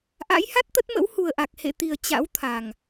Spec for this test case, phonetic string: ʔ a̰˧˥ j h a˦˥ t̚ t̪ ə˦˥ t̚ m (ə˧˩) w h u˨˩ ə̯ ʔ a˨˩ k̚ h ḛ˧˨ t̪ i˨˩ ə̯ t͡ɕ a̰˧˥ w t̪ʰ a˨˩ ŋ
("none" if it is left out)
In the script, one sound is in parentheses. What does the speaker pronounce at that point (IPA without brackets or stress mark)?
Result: ə̰˧˥